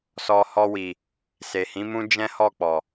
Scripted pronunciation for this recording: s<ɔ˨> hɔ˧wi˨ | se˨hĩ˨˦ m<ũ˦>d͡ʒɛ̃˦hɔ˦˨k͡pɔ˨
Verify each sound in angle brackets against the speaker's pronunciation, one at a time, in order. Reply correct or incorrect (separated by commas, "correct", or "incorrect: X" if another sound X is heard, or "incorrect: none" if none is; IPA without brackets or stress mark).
incorrect: ɔ˧, correct